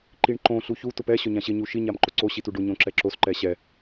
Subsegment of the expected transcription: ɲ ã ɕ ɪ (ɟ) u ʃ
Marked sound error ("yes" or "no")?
yes